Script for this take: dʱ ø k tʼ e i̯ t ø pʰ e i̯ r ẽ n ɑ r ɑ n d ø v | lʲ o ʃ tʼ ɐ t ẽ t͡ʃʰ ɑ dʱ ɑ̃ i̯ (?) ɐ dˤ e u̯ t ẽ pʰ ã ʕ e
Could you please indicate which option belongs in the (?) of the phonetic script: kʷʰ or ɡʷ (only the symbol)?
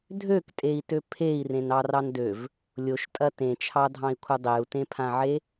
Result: kʷʰ